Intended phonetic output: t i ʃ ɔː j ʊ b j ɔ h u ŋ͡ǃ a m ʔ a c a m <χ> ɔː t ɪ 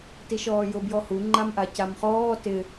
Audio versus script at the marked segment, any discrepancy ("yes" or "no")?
no